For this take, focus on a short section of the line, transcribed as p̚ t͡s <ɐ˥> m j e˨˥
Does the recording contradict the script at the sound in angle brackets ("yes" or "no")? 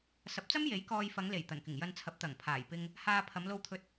no